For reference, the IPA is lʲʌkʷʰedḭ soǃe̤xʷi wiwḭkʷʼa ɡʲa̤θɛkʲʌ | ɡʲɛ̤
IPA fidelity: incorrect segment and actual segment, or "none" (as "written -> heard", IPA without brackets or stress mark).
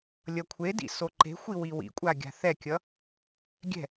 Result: none